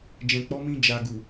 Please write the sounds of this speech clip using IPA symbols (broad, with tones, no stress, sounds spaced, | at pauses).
d͡ʒ ɛ̃˨ k͡p ɔ˨˦ m ĩ˧ d͡ʒ a˨ ɡ u˨